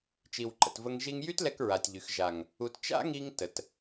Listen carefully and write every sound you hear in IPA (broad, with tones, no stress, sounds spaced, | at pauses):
t͡ʃ i˨ w ǃ ə̰˨ t v ə˧ ŋ ʒ i˧ ŋ j y˦ t l ɛ˧ k ɹ a˨ tʲ ʎ y˨ x ʒ a˨ ŋ | u˨ t t͡ʃ a̰˦ ŋ i˧ ŋ t ə˨ t